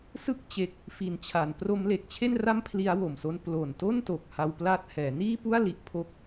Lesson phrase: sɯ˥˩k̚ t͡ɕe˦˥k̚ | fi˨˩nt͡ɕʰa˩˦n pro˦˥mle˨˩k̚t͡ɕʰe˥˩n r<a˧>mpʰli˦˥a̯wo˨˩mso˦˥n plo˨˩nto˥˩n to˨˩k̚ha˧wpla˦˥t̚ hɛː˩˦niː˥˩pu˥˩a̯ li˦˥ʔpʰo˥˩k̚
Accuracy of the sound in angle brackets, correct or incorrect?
incorrect